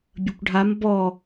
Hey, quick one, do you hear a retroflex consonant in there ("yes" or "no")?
yes